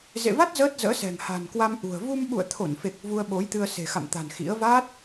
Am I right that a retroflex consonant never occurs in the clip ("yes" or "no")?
yes